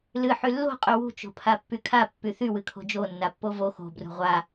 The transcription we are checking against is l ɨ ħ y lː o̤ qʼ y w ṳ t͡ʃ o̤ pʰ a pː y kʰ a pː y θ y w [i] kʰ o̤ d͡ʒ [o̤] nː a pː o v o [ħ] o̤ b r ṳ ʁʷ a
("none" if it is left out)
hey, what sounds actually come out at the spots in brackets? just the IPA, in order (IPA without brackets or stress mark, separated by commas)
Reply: ɨ, o, x